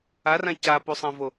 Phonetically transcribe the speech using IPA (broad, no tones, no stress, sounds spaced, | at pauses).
a r ã c a p u sˤ ɐ̃ v o